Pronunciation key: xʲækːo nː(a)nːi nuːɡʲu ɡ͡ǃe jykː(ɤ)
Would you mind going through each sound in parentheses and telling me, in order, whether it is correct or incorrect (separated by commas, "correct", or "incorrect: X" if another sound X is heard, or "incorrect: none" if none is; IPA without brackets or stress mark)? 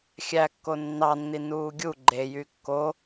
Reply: incorrect: ɑ, incorrect: o